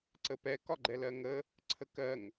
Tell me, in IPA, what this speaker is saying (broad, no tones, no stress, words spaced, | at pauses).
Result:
ǀəpɛ kɒɡ͡ǃɛlɜŋə | ǀʰəkɜŋ